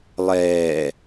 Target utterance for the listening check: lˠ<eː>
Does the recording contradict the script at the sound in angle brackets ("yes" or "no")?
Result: yes